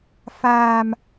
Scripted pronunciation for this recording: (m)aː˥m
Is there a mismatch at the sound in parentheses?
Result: yes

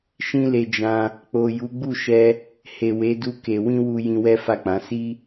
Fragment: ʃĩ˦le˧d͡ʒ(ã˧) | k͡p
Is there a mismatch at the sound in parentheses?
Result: no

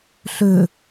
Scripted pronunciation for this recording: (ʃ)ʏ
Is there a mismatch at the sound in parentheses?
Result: yes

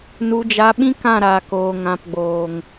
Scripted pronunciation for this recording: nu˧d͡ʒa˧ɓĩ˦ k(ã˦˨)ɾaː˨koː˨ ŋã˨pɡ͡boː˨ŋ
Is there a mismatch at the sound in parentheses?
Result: no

